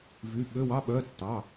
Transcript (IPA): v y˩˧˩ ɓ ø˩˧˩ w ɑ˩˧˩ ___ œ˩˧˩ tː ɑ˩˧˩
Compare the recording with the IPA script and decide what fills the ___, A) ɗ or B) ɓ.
B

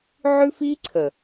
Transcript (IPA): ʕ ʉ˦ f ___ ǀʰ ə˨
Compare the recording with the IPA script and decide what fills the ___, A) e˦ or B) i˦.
B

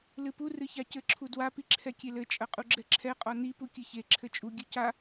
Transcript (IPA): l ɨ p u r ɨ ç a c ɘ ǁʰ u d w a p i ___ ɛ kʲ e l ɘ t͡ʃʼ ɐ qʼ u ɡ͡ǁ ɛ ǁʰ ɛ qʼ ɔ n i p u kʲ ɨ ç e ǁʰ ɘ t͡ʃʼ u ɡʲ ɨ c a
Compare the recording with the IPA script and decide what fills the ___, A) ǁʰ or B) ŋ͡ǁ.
A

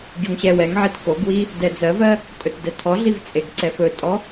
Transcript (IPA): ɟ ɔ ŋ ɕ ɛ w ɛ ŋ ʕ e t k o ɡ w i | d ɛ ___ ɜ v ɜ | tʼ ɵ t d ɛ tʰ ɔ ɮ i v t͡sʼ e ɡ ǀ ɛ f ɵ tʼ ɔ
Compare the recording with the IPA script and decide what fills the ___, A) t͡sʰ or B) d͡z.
B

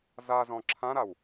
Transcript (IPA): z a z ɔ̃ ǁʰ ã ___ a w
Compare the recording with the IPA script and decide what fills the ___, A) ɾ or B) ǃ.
A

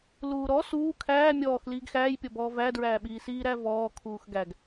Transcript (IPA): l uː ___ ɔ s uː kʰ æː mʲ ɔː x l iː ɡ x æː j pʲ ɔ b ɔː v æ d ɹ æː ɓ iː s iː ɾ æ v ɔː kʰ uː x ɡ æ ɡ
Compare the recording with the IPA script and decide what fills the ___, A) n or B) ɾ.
B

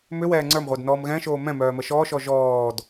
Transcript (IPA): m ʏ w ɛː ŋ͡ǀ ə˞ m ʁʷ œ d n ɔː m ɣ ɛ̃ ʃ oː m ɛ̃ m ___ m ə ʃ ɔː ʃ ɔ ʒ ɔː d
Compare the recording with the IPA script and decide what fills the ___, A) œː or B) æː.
A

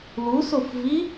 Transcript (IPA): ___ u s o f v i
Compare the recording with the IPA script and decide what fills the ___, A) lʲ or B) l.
B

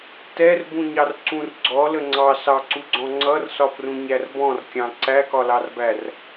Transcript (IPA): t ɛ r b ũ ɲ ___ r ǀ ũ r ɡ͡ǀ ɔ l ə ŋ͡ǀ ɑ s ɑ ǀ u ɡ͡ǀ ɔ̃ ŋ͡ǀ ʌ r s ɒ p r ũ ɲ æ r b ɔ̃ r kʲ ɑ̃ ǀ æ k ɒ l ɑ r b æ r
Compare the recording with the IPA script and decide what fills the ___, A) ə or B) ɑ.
B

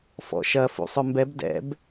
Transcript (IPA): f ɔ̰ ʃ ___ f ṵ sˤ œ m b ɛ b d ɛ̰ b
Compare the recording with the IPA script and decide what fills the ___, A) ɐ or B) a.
A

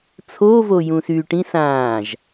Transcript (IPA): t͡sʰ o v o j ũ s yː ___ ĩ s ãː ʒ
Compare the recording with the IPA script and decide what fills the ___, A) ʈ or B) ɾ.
A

